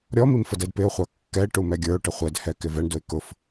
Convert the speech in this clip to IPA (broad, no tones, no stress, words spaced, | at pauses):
ɾʲɔmim fədɛdpɪʊ̯χʷɑ kːɛɪ̯ ʈumɛɡʲə˞ʊ̯ʈə χʷɛdhɛ kɪvɛɳdʊɪ̯ kʊf